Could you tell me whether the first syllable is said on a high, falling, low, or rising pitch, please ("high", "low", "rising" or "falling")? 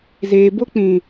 low